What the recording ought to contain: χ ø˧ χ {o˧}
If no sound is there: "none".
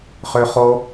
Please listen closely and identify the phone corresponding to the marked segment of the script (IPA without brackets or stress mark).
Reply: o˧